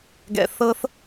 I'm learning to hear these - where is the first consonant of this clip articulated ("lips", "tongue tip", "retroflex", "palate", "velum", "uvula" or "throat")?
velum